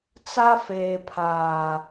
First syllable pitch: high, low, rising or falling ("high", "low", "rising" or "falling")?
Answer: high